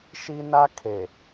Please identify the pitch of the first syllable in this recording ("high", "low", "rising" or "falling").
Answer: high